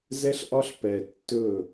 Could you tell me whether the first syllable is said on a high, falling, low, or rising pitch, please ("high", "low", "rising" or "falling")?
high